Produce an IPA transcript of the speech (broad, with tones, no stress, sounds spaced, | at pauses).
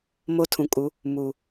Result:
m o˦ tʰ ũ˨ kʼ u˨˦ | m u˨